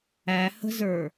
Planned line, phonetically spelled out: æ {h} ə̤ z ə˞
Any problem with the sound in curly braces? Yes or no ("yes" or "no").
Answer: no